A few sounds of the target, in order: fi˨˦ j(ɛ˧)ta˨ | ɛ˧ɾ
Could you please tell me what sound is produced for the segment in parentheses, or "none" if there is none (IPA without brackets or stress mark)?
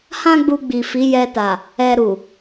ɛ˧